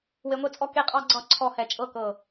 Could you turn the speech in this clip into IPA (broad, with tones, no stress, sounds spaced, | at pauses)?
w e˧ ŋʷ e˥ t͡sʼ ɔ˥ k e˥ qʼ ɑ˥ ɡ͡ǀ ɑ˥˧ ǀʰ ɔ˥˧ h ɛ˧ t͡ʃʼ ɤ˥˧ k ɤ˧˩